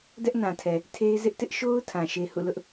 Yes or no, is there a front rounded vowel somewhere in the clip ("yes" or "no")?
no